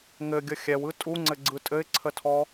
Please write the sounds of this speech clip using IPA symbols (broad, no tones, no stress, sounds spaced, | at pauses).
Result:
ŋ ɘ ɡʲ ə xʲ ɛ w ɯ tʼ u ŋ͡ǀ ɘ ɡ͡ǀ ɯ tʼ ɘ ɪ̯ ǀʰ ə tʰ ɔ